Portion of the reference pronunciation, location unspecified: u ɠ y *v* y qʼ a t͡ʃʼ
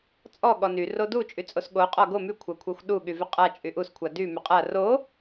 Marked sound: correct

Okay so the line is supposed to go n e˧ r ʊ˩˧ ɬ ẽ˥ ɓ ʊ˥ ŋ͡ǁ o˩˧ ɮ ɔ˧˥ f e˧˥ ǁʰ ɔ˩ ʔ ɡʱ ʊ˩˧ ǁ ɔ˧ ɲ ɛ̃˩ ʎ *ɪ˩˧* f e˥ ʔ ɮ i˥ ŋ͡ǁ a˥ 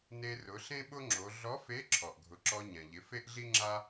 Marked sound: correct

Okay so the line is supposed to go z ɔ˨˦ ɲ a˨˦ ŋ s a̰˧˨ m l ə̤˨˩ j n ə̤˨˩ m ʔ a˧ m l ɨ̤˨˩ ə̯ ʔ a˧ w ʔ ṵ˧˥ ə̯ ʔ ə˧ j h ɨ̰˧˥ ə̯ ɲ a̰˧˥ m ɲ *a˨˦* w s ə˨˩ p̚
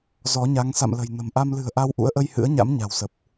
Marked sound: incorrect: a̤˨˩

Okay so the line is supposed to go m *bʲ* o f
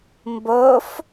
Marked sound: incorrect: b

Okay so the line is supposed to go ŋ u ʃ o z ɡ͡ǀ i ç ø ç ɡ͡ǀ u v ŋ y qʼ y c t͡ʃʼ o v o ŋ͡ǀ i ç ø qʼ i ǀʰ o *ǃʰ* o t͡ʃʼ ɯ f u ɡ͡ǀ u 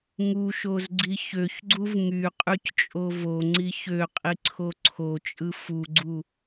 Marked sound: incorrect: ǀʰ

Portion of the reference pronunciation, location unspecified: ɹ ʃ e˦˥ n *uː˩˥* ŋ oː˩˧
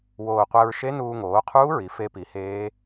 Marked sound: incorrect: uː˧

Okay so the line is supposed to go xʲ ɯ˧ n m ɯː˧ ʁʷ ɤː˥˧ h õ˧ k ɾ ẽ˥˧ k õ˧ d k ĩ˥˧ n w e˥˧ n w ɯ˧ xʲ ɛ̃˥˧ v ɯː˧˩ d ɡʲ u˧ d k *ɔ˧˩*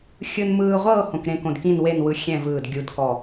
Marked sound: correct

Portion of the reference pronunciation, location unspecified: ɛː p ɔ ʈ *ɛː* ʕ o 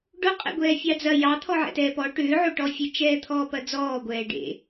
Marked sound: incorrect: ʏː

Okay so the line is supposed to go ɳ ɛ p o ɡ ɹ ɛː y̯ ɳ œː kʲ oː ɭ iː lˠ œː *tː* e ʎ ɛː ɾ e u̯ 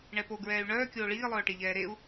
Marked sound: incorrect: ʈ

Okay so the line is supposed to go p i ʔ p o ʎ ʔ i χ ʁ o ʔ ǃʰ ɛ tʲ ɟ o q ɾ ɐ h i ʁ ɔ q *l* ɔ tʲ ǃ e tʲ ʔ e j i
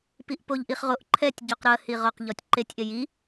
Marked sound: incorrect: ʎ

